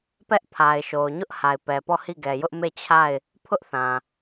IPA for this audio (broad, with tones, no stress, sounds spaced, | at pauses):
p ɛ˦ ʔ pʰ a˨ ɪ̯ ʃ o˨ ʊ̯ ɲ ʊ˦ ʔ h a˨ ɪ̯ p ɛ˨ p ɔ˦˨ h i˦˨ ɡ ɛ˨ j ʊ˦ ʔ m e˦˨ t͡ɕʰ a˦˨ ɪ̯ | pʰ ʊ˦ ʔ θ ã˨